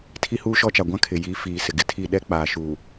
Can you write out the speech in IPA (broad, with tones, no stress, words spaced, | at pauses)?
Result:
tʰi˦huː˦ʃɔ˦t͡ʃa˨ ɡʷã˦kʰɪ˨ ji˨˦fiː˨ sɪ˨ɡɪ˦tʰi˦˨ ɗɛ˦ k͡paː˨ʃuː˨